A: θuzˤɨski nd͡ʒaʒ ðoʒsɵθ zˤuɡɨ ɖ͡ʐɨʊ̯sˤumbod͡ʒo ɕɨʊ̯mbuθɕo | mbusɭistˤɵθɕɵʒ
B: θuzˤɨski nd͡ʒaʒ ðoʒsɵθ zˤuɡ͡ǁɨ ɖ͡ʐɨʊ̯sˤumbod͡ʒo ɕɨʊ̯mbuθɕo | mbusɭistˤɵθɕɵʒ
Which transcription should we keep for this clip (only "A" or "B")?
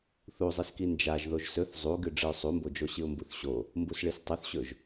A